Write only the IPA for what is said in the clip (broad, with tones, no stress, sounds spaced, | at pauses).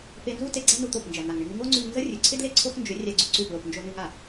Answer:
p e˧ n z u˦ t e˧ ɡ͡ǀ a˦ n u˧ t̪ o˦˨ p n d͡ʒ æ˨ n̪ a˨ ŋ ɳ ɪ˧ ŋ ɪ˧ ŋ o˦ ŋ͡ǀ ʉ˧ ŋ n z ə˦ rʲ ʉ˨ ǀʰ ɪ˦ d l e˦˨ ǀʰ o˦ x n d͡ʒ ʏ˨˦ rʲ æ˧ ɡ͡ǀ u˦˨ ǀ ʉ˦˨ p l o˨ p n d͡ʒ o˧ n ʉ˧ ŋ a˨